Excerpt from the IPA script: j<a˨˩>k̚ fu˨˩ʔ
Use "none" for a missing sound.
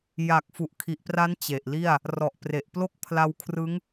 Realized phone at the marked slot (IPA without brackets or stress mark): a˨˩